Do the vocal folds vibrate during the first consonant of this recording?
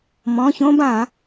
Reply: yes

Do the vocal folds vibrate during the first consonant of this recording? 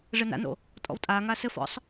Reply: yes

